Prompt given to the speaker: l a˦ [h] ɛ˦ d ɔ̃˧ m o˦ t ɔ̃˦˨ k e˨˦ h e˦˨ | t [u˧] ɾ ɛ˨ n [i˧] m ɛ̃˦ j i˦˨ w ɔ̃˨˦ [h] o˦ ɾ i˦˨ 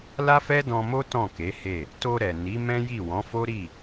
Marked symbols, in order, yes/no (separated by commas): no, no, no, no